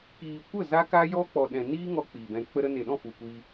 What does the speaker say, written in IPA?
k iː˨ kʷ ə˦˨ z a˦ k a˦ j ɔ˦ k͡p ɔ˨ ɗ ɛ̃˨ n iː˦ ŋ ɔ˧ k͡p i˨ b ɛ̃˧ k͡p ə˧ ɾ ə˧ n e˨ ɗ ɔ̃˦˨ f u˨ kʷ iː˧

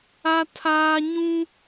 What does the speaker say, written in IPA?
a˦ tʰ aː˦ ɲ ũ˦

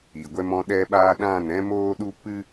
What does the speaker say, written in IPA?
i˨ ɡʷ ɛ˦ m ɔ̃˦ ɗ ɛ˧ ɓ aː˧ ɗ ã˦˨ n ɛ̃˦ m oː˦ ɗ u˦ p ɨ˦

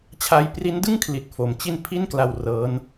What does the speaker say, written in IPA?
t͡ɕʰ a˧ j p r i˦˥ n d ɯ˥˩ ŋ kʰ l i˨˩ t̚ f o˩˦ m t͡ɕ i˥˩ n pʰ i˥˩ n k l a˧ w r ɤː˦˥ n

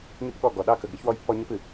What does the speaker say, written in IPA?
ɲ ɨ˦ p ɠ ɔ˦˨ ɡ ɔ˨ ɗ ɑ˦ k ə˨ ɡ ɾ ɨ˦ ç w ɔ˦ j pː ɔ˦ ɲ ə˦ p ɨ˨

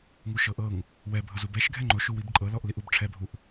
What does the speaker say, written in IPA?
ŋ u ʃ ɤ ʔ ɤ ŋ | w ɛ bʱ ɤ z u b ɛ ʃ ɡʱ ɛ ŋ͡ǃ o ʃ u w i b ǃʼ ɤ l ɔ ʔ l i ʔ u b ʈ͡ʂʰ ɛ bʱ u ʔ

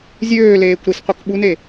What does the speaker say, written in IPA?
zʲ øː l eː kʷ ɾ i s qʷ i k ɓ u n e

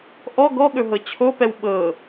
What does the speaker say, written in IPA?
ʔ ɔ ɡ ɔ ɠ ɵ ɦ ɤ t͡ɕʰ o p ɛ w ɓ ɤ

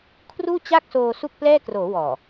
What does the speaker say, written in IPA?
kʰ r uː˥˩ t͡ɕ a˥˩ k̚ s oː˧ s u˥˩ k̚ p l ɛː˥˩ k r oː˩˦ w ɔː˨˩

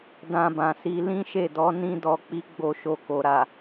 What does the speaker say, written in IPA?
d ã˧ b ã˨ s i˧ l ĩ˦ ʃ e˦˨ d ɔ˨˦ n ĩ˧ d ɔ˨ k͡p i˨˦ ɡ͡b o˧ ʃ o˧ k o˨ ɾ a˨

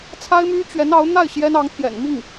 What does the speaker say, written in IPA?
t͡sʰ a˥ ɪ̯ m y˥ t͡ɕ ɥ ɛ˧˥ n ɑ˧˥ ʊ̯ n̪ a˥˩ ɪ̯ ɕ j ɛ˥ n ɑ˧˥ ŋ t̪ʰ j ɛ̰˨˩ n m i˥˩ ŋ

